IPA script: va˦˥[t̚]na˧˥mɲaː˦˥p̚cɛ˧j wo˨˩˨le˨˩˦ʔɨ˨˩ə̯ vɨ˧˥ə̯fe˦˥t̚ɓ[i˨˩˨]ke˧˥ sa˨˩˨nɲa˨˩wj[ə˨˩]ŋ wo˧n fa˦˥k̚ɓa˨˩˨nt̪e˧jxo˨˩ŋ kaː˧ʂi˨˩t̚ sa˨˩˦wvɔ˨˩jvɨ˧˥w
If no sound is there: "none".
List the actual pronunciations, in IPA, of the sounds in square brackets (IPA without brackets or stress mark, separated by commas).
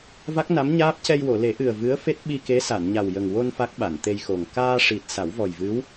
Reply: k̚, i˧, ə˨˩